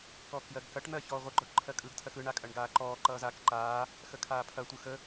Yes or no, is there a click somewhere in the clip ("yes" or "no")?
yes